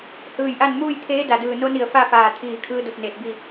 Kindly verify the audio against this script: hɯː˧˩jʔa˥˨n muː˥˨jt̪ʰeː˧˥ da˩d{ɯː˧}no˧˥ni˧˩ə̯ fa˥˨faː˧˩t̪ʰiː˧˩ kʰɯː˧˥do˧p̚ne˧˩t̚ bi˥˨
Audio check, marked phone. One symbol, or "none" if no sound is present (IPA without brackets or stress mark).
ɯː˧˩